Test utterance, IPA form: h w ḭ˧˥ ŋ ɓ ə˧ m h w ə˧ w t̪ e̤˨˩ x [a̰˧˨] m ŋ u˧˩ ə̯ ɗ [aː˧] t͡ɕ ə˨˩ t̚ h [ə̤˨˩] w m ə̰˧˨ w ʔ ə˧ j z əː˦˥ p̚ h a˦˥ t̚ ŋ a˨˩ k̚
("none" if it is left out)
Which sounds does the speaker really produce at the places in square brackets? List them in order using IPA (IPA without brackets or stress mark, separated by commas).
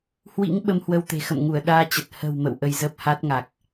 ə̰˧˨, aː˧, ə̤˨˩